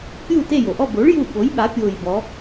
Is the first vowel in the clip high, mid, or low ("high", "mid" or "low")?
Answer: high